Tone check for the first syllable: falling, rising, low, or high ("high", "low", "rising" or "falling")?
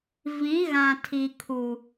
rising